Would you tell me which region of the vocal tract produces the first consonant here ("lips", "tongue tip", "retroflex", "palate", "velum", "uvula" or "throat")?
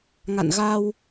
velum